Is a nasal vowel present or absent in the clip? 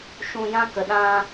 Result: present